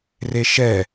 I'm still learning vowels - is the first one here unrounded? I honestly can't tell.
yes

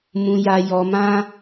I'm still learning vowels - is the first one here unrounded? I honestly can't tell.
no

